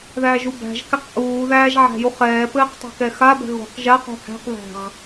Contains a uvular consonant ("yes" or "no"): yes